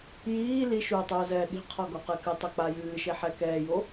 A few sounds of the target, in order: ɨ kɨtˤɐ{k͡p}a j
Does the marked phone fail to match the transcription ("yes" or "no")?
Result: no